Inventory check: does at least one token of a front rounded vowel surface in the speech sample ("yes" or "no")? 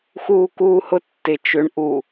yes